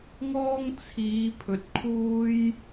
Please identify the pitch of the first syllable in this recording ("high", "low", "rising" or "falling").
high